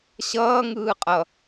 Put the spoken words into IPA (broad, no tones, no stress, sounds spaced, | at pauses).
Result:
ɕ ʌː ŋ ɯː qʼ ʌ